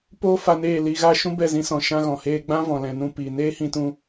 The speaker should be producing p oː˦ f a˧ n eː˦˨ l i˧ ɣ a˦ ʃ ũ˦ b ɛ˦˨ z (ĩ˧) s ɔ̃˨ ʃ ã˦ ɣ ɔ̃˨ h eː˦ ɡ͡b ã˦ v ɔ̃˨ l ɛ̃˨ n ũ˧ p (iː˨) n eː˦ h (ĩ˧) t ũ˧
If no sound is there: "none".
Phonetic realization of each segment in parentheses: ĩ˧, i˨, ĩ˧

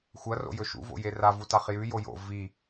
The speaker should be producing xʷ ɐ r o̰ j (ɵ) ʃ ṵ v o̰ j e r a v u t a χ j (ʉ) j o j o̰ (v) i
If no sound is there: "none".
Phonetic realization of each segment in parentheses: ɵ, ʉ, v

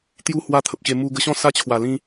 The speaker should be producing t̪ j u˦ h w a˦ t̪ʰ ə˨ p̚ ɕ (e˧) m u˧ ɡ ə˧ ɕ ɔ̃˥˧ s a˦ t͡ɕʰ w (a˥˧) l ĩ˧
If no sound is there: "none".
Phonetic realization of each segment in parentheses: e˧, a˨˩

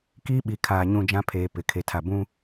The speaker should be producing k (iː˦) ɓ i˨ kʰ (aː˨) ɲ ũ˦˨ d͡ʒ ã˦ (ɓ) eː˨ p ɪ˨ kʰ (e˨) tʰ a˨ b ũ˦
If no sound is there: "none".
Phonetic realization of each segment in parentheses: iː˦, aː˨, pʰ, e˨

